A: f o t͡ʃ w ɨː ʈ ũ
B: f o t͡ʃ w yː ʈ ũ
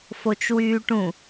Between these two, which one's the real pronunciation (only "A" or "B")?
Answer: B